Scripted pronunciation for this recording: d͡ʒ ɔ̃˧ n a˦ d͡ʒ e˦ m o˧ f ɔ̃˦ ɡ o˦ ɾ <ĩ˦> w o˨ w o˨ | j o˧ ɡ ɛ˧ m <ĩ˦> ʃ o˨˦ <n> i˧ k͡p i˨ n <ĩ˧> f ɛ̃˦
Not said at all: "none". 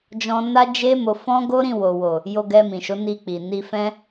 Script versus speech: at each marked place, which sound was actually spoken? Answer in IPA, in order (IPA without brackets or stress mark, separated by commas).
ĩ˦˨, ĩ˨, n, i˧